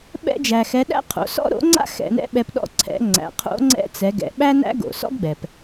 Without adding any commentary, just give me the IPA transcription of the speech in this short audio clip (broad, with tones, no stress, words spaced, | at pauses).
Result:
ɓɛ̰˧d͡ʒæ˩xɛ˩˧ ɗæ̰˥qʰo̰˩˧ sɔ̰˥ɾo̰˧˥ŋ͡ǀa̰˥ xɛ̰˧nɛ̰˥ɓɛ˧p ɗɔ̰˧ ǀʰɛ̰˩˧ ŋ͡ǀæ̰˩qʰo̰˧˥ ŋ͡ǀɛ̰˧˥t͡sɛ˩˧ ɡɛ̰˩˧ɓæ˥næ̰˥ ɡo̰˩ sɔ̰˥ɡɡ͡bɛ˩p